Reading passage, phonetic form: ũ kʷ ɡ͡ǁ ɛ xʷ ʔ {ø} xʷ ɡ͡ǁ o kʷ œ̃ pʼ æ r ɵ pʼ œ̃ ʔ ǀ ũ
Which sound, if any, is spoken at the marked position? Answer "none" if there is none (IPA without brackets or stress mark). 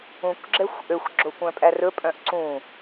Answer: ø